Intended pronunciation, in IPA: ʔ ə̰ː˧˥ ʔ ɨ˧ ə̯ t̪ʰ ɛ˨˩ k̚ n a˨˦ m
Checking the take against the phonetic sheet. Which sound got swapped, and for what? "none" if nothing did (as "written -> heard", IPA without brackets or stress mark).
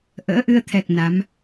none